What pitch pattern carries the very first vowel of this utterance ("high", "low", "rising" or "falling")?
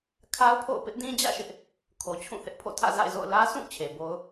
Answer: high